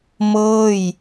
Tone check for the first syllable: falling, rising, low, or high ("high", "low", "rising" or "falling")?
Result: falling